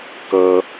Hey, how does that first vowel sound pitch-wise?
high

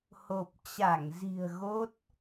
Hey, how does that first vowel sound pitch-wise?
low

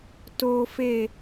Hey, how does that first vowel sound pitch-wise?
low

